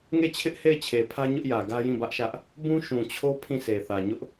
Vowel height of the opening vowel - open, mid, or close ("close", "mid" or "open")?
mid